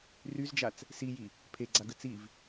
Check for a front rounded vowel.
present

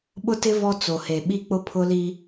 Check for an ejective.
absent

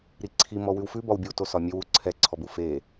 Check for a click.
present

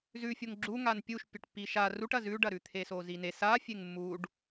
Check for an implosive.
absent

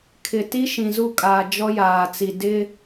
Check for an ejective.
present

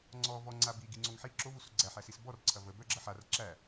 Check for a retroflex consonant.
absent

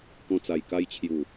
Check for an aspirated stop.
present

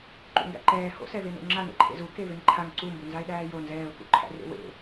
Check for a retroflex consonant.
absent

